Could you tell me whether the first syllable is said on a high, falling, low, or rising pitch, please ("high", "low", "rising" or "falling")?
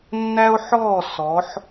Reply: high